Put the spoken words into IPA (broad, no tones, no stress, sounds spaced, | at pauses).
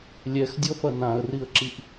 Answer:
lʲ ɛ x dʲ ɔ f ɐ n ã ə̯ r i ə̯ ǁ i ʔ